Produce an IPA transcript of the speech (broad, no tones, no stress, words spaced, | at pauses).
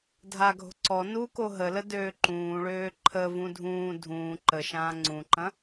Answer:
dʱaɡʱo̤ ǀɔ nuko ɦələ døːǃũːɭøː ǃʰəvũ dʱũː dʱũː ǃəʃãː ŋ͡ǀũǃɐ̃